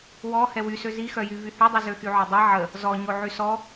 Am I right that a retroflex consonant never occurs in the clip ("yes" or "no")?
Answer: yes